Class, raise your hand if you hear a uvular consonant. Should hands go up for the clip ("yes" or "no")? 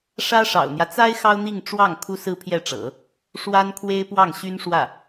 no